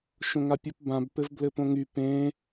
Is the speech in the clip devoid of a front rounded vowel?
no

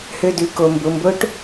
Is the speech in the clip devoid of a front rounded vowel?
no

